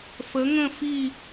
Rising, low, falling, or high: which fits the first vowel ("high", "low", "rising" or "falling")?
rising